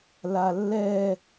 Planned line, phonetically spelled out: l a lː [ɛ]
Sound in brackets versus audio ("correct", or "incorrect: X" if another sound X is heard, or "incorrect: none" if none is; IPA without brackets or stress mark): correct